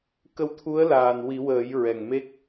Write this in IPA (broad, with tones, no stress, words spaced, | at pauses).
kə˧wt̪ʰu˧˥ə̯laː˨˩n wi˨˩˦wəː˨˩˦j ɹɛ˨˩ŋme˦˥k̚